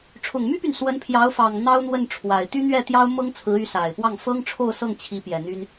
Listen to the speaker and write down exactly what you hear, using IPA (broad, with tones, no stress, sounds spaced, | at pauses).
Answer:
ʈ͡ʂʰ ʊ˨˩ ŋ m y˥ p y˨ n s w ə˧˥ n pʰ j ɑ˧˥ ʊ̯ f ɑ˨˩ ŋ n̪ ɑ˥ ʊ̯ n̪ w ə˥˩ n ʈ͡ʂʰ w a˨˩ ɪ̯ t̪ y˥ n̪ ɥ ɛ˥˩ t̪ j ɑ˥ ʊ̯ m ɤ˥ ŋ t͡sʰ ɹ̩˧˥ y˧˥ s a˨˩ ɪ̯ p w ɑ˥˩ ŋ f ɤ˥ ŋ ʈ͡ʂʰ o˥˧ ʊ̯ s ɤ˥˩ ŋ t͡ɕʰ i˧˥ p j ɛ˨˩ n̪ y˥ n